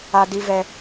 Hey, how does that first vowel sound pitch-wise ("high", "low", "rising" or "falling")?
high